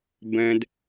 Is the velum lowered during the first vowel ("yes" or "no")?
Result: yes